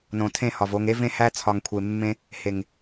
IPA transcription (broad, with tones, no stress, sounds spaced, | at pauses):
n õ˨ tʰ ẽ˦˨ h ɒ˨ v o˦ ŋ e˦ v ẽ˦ h æ˦ t͡sʰ ɒ˨ ŋ kʷʰ e˨ mː ẽ˦ | h e˨ ŋ